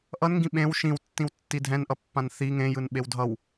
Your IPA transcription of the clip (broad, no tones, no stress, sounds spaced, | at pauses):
ʔ ʌ n ŋ ɡ ĩ ɓ ẽ w ʃ ĩ w tː ĩ w tː i dʱ ɛ̃ n ʔ ʌ pː ã n θ i ŋ ẽ j ɯ n ɓ e w dʱ ʌ w